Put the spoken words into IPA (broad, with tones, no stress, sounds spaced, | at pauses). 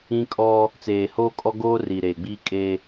ĩ˦ kʼ ɔ˦ | t͡s eː˨ h oː˦ kʼ ɔ˦ ɡ oː˦ r iː˨ ɾ eː˨ ɡ͡b iː˦ kʼ eː˦